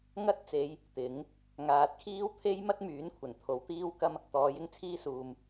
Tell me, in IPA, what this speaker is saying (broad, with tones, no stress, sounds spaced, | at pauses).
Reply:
ŋ ɐ˥ t̚ t͡s e˨˧ j | t̪ ɪ˨˥ ŋ | ŋ aː˨ t̚ kʰ iː˥ w t̪ʰ e˥ j m ɐ˥ t̚ m yː˨˥ n kʷʰ ɐ˨˩ n t̪ʰ o˨˥ w t̪ iː˥ w k ɐ˥ m | t̪ ɔː˨˥ j ɪ˥ ŋ t͡sʰ iː˥ s uː˨ m